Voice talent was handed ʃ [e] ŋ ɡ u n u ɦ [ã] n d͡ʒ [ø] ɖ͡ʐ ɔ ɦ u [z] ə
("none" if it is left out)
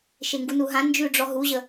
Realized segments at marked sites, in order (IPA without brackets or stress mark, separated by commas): e, ã, ʉ, ʑ